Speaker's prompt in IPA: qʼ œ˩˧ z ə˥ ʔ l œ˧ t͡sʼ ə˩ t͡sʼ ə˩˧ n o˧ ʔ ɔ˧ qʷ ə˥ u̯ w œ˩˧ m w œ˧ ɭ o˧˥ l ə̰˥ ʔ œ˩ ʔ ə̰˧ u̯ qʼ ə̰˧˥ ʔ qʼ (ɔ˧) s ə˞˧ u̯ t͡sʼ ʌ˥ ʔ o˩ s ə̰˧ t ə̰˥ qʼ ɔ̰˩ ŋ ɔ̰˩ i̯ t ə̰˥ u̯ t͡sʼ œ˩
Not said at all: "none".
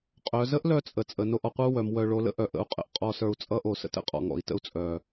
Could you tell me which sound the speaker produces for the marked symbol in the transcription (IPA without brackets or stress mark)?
ɔ˧